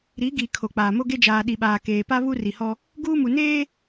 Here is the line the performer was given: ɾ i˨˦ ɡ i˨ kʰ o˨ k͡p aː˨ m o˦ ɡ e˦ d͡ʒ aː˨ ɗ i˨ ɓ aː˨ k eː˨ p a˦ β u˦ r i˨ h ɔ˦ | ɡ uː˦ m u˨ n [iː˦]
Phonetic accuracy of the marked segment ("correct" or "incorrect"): incorrect